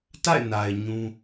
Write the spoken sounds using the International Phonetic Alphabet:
t a̰˦˨ ɪ̯ n a˨ ɪ̯ ɲ ũ˦

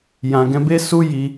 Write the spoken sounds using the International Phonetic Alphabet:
j ã˨ ɡ ɛ̃˧ b e˦ s u˦ j i˧

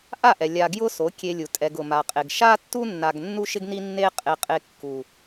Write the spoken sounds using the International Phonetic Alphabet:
ʔ a˦˨ ʔ ɛ˨ lʲ a˧ ɡ j ʊ˦ s o˨˦ kʲ e˧ lʲ u˨ tʼ ɛ˧ ɡ ʊ˨ m a˨ qʼ e˨ ɡ ʃ a˦ tː u˦ nː a˧ ɡ nː u˦ ʃ ɪ˦ ɡ n i˦ nː e˦ qʼ e˧ qʼ e˧ kː u˨

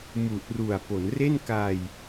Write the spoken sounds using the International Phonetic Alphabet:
m u˨˩ ʔ r u˨˩ a̯ p o˩˦ n r e˥˩ n k a˧ j

